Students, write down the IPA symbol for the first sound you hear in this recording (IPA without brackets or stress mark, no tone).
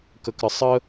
k